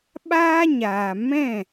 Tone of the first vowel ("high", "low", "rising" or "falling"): high